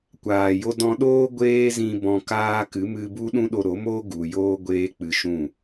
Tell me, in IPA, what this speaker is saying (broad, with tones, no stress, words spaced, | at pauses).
kʷaː˨jo˦ dɔ̃˧ɗoː˦ ɡʷeː˦zĩ˧ bɔ̃˧kaː˦ kɨ˨˦mɨ˧bu˦ ɗũ˦ɗo˧ɾo˨˦moː˦ ɡu˨joː˦ ɡʷeː˦k͡pɨ˧ʃũ˦˨